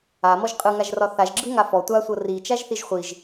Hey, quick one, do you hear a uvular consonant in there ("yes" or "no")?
yes